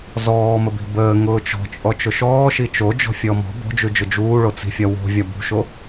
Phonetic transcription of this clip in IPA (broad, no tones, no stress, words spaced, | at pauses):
zɔːməbi̤ bəː ŋʊːt͡ʃɔ̤t͡ʃʼɔ t͡ʃʊʃɔːʃi t͡ʃo d͡ʒɔ̤fʲɔmɔ̤ bo̤d͡ʒʉd͡ʒʊ d͡ʒuːɭot͡si̤fʲɒ wo̤ vʲɒbṳʃo